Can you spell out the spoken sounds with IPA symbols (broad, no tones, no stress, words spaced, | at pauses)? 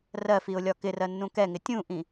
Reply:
rɜfiʊ̯lʲɒ kɪrɜnːũ kɛŋɪ tʲũʔĩ